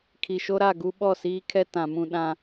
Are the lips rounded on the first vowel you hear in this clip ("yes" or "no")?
no